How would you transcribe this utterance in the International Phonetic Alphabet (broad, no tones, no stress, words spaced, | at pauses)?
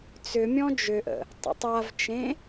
t͡sʏmʲɔ̃ d͡ʒʏʔə̰ | tˤə̰tˤavt͡ʃẽ